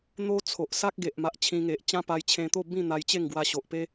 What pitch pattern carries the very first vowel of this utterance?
high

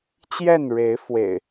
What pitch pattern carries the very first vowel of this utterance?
falling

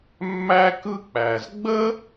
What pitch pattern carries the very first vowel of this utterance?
high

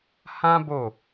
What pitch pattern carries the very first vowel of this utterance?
high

